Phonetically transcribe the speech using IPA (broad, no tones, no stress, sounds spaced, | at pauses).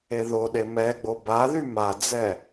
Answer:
e ð o ɗ e m ɛ ɡ͡b o b a ð y m a d͡z ɛ